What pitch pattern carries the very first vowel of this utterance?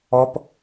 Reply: high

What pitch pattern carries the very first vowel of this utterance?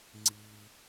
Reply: low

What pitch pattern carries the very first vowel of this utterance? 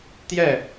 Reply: falling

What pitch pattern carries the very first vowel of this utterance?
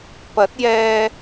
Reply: rising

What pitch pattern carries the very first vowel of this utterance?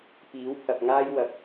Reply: rising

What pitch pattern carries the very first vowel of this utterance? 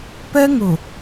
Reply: high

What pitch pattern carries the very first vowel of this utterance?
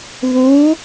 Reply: rising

